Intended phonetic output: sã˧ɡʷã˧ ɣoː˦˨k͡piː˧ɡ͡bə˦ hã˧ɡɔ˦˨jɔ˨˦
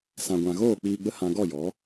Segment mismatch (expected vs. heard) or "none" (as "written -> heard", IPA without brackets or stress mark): none